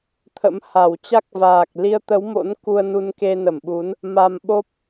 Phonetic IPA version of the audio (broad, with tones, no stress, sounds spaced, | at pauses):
t̪ʰ ə̰˧˥ m h a˧˩ w t͡ɕ a˦˥ k̚ v aː˨˩ k̚ l i˧ ə̯ t̪ ə˨˦ w m o̰˧˥ n k u˧ ə̯ n u˧ n k e˧ n ə˧˩ m ɓ u˨˦ n | m a˧ m ɓ o˦˥ p̚